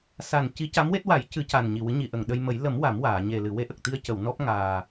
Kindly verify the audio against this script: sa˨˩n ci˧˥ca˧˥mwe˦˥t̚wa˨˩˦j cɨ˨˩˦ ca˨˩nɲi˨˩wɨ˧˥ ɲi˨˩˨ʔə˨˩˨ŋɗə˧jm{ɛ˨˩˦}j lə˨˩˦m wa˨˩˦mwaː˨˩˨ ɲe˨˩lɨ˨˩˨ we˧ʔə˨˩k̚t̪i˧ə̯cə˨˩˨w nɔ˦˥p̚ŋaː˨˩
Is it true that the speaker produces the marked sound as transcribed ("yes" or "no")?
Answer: no